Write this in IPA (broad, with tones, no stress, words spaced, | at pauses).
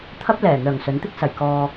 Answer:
t̪ʰɐ˥p̚lɛː˨˩ n̪œː˨˩ŋsɵ˨˥nt̪ɪ˥k̚ sɐ˨˩j kɔː˧